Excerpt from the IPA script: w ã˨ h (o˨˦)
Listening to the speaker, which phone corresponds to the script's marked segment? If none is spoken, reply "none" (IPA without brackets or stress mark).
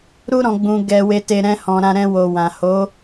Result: o˨˦